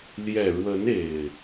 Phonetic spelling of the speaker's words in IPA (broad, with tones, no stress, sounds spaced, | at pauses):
l j ɛ˨˩ ɻ w ə˨˦ n e˨˩ ɪ̯